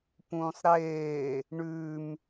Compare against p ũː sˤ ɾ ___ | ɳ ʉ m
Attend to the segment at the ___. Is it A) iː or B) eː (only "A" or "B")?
B